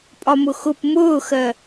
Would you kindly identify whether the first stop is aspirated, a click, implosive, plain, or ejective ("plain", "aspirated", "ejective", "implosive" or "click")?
ejective